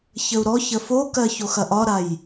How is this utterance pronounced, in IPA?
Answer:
çəu̯ɾɔçə fokɜ çoxɐʔɒɾaj

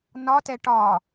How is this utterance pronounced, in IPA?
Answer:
nɒtɛ ʈɒ

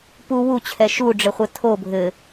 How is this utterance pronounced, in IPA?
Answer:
pu wut͡ɕʰɛ ʃuɖ͡ʐɘχʷɘ tʰo bʱɘ

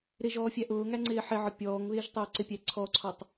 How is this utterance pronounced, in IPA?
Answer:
ɾɪ ʒɔːfʲæʔʊːŋæ ŋ͡ǀɪːħɪʕɒ pʲɔːŋβɪːʒ tˤʊːǀɪpʲæ ǀʰɔǀʰɔtˤ

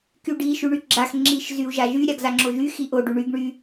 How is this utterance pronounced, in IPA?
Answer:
kyɖi ʃyɳyɡ͡ǁax ŋ͡ǁiʃ zyu̯ʒaʒy ɾʲaɡzaŋ͡ǁoʒy xiʔo ɖyɳyɡ ɳy

